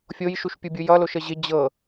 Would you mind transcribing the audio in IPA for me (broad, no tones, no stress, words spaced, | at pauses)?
fʲojʃuʃpʲubʲu jʌloʃə ʑɪ d͡ʑɤ